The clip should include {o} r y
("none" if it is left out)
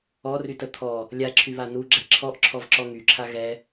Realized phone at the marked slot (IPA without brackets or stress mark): ɔ